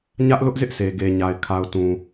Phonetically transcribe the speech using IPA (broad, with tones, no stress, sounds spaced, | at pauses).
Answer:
ɲ ä˦ ʔ l ʊ˦ ʔ z ɪ˦ ʔ sʰ e˨ ɡ e˨ ɲ a˨ ɪ̯ kʰ a˨ ʊ̯ t ũ˨